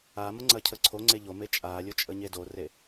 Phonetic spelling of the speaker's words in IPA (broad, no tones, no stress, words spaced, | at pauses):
amə ŋ͡ǀɐcʰəǀʰoŋ͡ǀe ʎome t͡ʃʼalʲo t͡ʃʼəɲedore